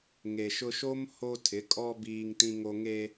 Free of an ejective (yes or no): no